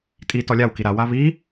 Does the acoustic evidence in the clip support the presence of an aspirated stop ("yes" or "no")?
no